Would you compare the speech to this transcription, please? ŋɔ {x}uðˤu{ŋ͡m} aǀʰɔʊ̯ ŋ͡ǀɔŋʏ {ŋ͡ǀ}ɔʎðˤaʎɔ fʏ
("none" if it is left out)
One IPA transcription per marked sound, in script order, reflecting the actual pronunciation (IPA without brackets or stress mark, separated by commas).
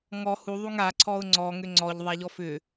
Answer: h, ŋ, ŋ͡ǀ